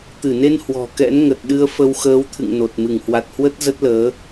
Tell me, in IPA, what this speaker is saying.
t̪ ɨ˧˩ n e˧ n h w ɔ̤˨˩ k ɛ̰˧˥ n ŋ ə˨˩ t̚ ɗ ɨ˧ ə̯ f ə˧ w x əː˨˦ w t̪ʰ ɨ̰˧˨ ŋ n o˨˩ t̚ m ɨ˧˩ ŋ h w a˨˩ t̚ h w ə˦˥ t̚ z ə˦˥ t̚ l əː˨˦

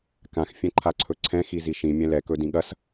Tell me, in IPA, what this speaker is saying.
k ã x fʲ ɛ̃ ǃʰ a ǀʰ ɵ ǀʰ ɛ̃ x i z i ʃ ĩ mʲ ɛ̃ l ɛ k ɵ d ĩ ɠ ɐ s

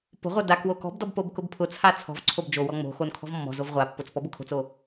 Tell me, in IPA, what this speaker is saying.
p o̤ ʁʷ œ d a k w o k ɔ̤ b d ɔ b p o b k ʊ b pʰ ʊ t͡sʰ a t͡sʰ ɔ̤ v ǀʰ o b d͡ʒ o w ɔ ŋ͡m o̤ x o n kʰ ɔ̤ v mː ɔ̤ z o v ʁʷ a pː ʊ t͡s p ɔ b ʊ kʰ o̤ t͡s o

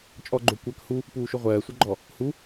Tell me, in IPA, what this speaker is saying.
t͡ʃʼ ɔ ɡ͡ǃ o kʷ ɜ k h u | p uː ʃ o ʁʷ ɜː sʷ ɜ ɡ͡ǃ ɔ | h u

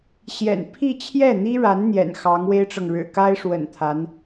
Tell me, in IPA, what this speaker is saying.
ɕ j ɛ̰˨˩ n pʰ i˥˧ t͡ɕʰ j ɛ˥˩ n̪ i˥ ɻ a˧˥ n n̪ j ɛ̰˨˩ n x ɑ˧˥ ŋ w e˥ ɪ̯ ʈ͡ʂ ɤ˨ ŋ ɻ ɻ̩˨˩ k a˥ ɪ̯ ʂ w ə̰˨˩ n t̪ʰ a˧˥ n

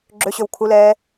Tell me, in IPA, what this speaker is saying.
ɡ͡ǁ ø ɕ ø w kʰ u l ɛː

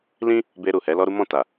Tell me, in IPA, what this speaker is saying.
l ĩ˦ | b e˧ ɾ u˨ h ɛ˨˦ l ɔ˦ ɾ u˦ m ɔ̃˦˨ t a˨

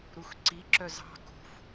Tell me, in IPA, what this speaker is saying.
ɾ u x ǀ i ǁ œ z ɑ̤ k ṳ f

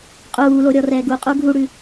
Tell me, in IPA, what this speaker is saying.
qʼ uː l o ɾʲ ɔ r ɛː ɡ u qʼ uː ɡʱ u ɽ ʉ

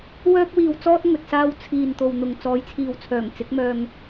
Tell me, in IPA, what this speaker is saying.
w œː˥ k̚ w iː˧ w t͡s ɔː˥ t̚ ŋ ɵ˨ t̚ s aː˧ w t͡sʰ iː˨ n t̪ o˨ w n̪ ʊ˨ ŋ t͡s ɔː˨˥ j t͡sʰ iː˨ w t͡sʰ œː˨˩ ŋ t͡s ɪ˨˥ k̚ m œː˧ ŋ

